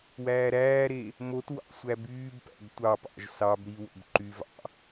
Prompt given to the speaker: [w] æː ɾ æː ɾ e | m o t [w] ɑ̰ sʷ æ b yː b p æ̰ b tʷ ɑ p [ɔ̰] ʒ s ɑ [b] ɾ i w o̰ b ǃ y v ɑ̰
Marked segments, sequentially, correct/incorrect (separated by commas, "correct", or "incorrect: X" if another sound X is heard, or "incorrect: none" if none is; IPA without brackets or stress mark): correct, correct, incorrect: ɑ̰, correct